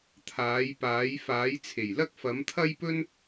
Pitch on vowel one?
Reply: rising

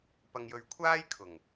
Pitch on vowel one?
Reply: low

